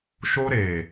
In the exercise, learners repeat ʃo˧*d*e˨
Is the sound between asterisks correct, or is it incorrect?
incorrect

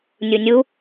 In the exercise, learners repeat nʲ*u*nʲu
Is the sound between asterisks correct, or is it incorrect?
correct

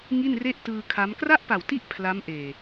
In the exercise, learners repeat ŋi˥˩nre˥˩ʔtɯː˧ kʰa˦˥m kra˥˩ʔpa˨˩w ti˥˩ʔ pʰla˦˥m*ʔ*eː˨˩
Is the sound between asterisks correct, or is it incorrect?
correct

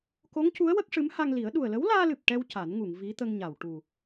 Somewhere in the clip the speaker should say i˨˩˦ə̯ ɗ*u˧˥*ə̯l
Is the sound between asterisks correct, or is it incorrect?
incorrect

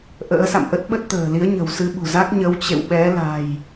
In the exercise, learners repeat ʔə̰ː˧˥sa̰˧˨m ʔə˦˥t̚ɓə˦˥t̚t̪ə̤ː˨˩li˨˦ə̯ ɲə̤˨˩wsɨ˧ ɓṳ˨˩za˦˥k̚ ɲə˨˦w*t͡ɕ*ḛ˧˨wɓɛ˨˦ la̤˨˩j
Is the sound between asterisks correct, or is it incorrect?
correct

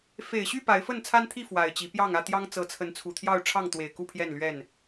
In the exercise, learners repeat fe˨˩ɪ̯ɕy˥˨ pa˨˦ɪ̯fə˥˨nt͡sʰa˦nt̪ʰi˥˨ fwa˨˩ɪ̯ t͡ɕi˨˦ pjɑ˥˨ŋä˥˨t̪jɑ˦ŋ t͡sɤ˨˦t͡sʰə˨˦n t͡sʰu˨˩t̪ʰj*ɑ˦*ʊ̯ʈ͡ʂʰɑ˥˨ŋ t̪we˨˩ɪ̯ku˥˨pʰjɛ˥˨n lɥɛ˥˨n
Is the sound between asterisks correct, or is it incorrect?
incorrect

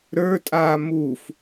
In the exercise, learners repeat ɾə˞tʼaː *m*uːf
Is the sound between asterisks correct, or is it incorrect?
correct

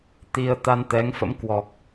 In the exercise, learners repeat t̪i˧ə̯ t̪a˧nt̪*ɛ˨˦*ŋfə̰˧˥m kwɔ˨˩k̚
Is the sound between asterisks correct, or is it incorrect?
correct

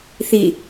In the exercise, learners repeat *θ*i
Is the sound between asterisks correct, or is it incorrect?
correct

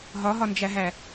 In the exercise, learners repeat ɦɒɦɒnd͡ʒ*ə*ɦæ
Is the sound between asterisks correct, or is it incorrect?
incorrect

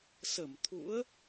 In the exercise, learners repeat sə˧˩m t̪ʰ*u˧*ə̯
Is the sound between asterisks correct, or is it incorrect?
incorrect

